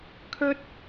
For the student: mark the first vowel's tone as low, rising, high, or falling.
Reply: high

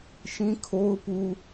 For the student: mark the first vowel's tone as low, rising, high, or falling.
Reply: high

